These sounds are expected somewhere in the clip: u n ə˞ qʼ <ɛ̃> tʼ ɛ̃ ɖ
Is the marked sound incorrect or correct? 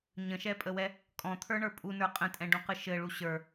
incorrect